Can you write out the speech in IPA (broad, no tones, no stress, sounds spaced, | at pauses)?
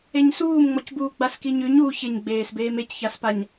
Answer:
e ɲ s uː m ŋ͡m ɔ c b uː ɡ͡b a s k i ɲ ʉ ɲ u ç ɪ ɲ ɡ͡b eː s b eː m e c ç a s p a ɲ